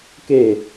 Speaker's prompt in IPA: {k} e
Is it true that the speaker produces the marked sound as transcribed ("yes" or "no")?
yes